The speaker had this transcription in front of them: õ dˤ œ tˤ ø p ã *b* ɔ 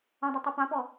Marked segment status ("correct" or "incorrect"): incorrect